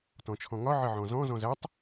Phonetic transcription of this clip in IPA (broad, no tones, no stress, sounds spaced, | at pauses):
t ɔ̃ t͡ʃʰ ɔ̃ ŋ ɒ ʕ ɘ ʕ ɔ̃ z ɔ̃ z ɔ̃ z æ tˤ